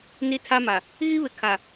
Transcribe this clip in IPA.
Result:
n i˦ tʰ a˦ m a˨ | ɣ i˦ β ɪ˨ kʰ a˨

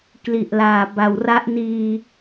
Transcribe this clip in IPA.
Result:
k l i˨˩ ʔ l aː˨˩ b a˨˩ w r a˦˥ ʔ n iː˧

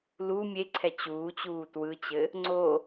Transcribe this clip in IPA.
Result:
l u mʲ e ǀʰ ɛ t͡ɕ uː t͡ɕ uː t w ɯ t͡ɕ ɘ | ŋ͡ǀ o

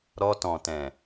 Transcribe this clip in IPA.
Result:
ɾ ɔ˧ t ɔ̃˨ t ɛ̃˨

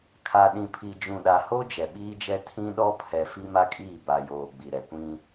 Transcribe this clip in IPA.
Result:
kʰ a˨ ɗ ĩ˨ pʰ i˨ d͡ʒ ũ˨ ɗ a˨ h o˦ d͡ʒ ɛ˨ ɓ iː˦ d͡ʒ ɛ˦ tʰ ĩ˦ ɗ ɔ˦ pʰ ɛ˨ f i˦ m a˦ kʼ iː˦˨ b a˨ j oː˨ ɡ͡b i˨ ɾ ɛ˨ kʷ ĩ˦

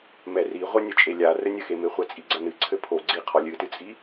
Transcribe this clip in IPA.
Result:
m ɛ r i ʁʷ ɐ nʲ ɘ t͡ʃʼ e lʲ a r ɘ nʲ ɘ x e m e χʷ ɛ t͡sʼ i ɡ͡ǀ ɐ n ɨ ǀʰ ɘ pʰ o ɡ͡ǀ i qʰ ɔ lʲ ɨ t ɨ t͡sʼ i

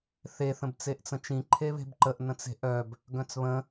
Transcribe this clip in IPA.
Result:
θ e θ ə̃ b t͡s e ʔ t͡s ə̃ t͡ʃ ĩ ǃʰ e β e̤ b ǃ ə ʔ n ə̃ t͡s e̤ ʔ œ b | ɡ œ̃ t͡s β ə̃

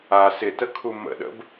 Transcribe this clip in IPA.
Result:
a s ɪ t ə kʰ u m ə̰ ɗ ə̰ b

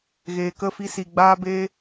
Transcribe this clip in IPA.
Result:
ɣ eː˨ k ə˦˨ f i˧ s i˨ ɡ͡b aː˧ b eː˧

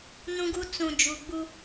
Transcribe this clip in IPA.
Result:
n ũ˦ ɡ u˦ t͡s ũ˨ d͡ʒ u˨ ɡ͡b u˦

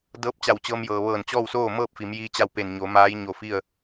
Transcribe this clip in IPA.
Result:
d ɤː˧˥ p̚ t͡ɕ a˧˩ w t͡ɕ ɤː˧ m j ɤː˩ ʋ ɤː˧˩ n t͡ɕ ɔː˥˨ w s oː˥˨ m ɤː˥˨ p̚ f i˩˧ m j iː˧ t͡ɕ a˥˨ w p e˧˩ n ɲ o˩˧ m aː˧˥ j ɲ o˧˩ f i˥˨ ə̯

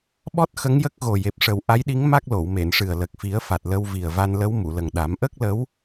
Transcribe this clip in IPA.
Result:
ɓ ɔ˦˥ t̚ x ə˧˥ ŋ j ə˦˥ k̚ ɣ o˨˩ j e˨˩ p̚ ʂ ə˨˩ w ʔ a˧˥ j ɗ i˧˥ ŋ m a˦˥ k̚ l o˨˩˨ w m e˨˩˨ n ʂ ɨ˨˩ ə̯ l ə˨˩ k̚ f i˨˩˦ ə̯ f a˨˩ t̚ l ə˧ w v i˨˩ ə̯ v a˧ n l ə˧˥ w m u˨˩˨ l ə˨˩ ŋ ɗ a˨˩˦ m ʔ ə˦˥ k̚ l ə˧˥ w

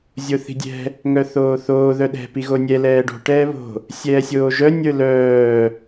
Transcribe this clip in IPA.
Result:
zʲ o θ i̤ dʲ ɛ̤ | ŋ œ θ oː θ oː ð œ ɗ ɛ̤ p i ɣ o nʲ ɛ l ɛː ɖ o̤ ʈ ɛː β o̤ | sʲ ɛː sʲ oː ʒ œ nʲ ə˞ l œː

